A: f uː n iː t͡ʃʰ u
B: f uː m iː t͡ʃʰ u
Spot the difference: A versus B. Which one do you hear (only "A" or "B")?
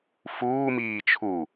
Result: B